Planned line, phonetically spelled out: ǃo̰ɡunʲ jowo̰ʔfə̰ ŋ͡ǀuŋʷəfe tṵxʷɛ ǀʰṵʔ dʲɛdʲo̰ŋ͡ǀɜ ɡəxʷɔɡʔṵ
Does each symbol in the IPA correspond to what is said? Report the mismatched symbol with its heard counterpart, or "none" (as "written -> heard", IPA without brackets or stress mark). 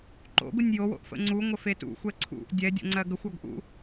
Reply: none